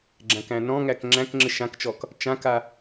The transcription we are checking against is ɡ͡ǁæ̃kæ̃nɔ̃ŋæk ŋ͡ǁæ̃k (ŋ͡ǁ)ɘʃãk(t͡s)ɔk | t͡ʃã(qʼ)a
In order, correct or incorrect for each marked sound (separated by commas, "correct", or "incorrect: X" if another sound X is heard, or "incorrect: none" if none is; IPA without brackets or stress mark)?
correct, incorrect: t͡ʃ, incorrect: k